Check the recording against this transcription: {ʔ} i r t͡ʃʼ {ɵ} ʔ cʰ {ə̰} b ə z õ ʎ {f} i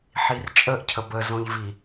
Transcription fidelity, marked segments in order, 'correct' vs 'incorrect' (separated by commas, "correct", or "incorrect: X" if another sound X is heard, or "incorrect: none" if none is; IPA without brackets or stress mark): incorrect: ħ, incorrect: ə, incorrect: ə, incorrect: v